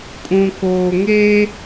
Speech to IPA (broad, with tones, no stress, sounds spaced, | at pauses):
kʼ ũ˨ k oː˨ ŋ e˦